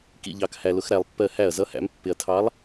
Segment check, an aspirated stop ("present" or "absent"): present